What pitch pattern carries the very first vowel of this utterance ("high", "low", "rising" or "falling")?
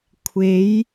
rising